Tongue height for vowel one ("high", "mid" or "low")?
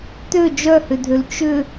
mid